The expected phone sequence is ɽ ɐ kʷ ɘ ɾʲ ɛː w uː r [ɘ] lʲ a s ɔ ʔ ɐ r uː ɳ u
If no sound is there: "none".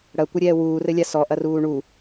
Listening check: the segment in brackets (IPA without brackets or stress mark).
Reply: ɘ